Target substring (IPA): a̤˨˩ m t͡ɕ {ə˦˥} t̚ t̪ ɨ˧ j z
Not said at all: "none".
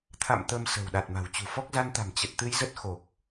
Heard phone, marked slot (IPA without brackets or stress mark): ə˨˩